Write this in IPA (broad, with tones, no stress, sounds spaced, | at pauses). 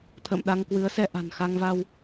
t̪ʰ ə̰ː˧˨ m ɗ a˧ ŋ k w ɨ˨˦ ə̯ s ɛ˧ ʔ a̤˨˩ n x a˧ ŋ v a˧ w